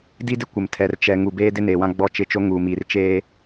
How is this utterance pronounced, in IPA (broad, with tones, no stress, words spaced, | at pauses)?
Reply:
di˦dɪ˦ kʷɪ˨m tʰɛ˨rt͡ʃɛ˨ ŋu˨beː˦dɪ˦ neː˨wã˦ɡ͡bɔ˦˨ t͡ʃɪ˦˨t͡ʃo˦ ŋuː˨miː˨r t͡ʃeː˦